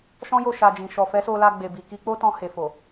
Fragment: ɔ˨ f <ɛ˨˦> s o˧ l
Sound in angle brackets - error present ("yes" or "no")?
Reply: no